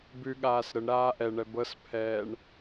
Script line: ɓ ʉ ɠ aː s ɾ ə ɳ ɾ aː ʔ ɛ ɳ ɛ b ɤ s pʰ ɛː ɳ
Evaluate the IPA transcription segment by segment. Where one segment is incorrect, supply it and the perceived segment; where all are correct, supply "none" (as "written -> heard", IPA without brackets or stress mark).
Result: ɓ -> b